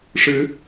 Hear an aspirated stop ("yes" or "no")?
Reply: no